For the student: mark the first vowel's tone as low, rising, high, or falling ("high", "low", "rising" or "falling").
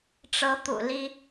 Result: rising